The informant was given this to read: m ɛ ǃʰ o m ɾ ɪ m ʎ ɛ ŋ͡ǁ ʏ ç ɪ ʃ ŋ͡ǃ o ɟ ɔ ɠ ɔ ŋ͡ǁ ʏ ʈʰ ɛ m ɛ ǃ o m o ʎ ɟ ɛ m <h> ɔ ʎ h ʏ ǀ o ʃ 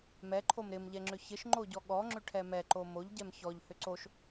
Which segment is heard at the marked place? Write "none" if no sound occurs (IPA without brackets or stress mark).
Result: ç